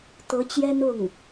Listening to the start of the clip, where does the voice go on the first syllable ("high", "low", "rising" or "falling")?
rising